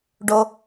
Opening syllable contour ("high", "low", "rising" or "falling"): low